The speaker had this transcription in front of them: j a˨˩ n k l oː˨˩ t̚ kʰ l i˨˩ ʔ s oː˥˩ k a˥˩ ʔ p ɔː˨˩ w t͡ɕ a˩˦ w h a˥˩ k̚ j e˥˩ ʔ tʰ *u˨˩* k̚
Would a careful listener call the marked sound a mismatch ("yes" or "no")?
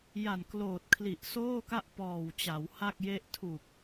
no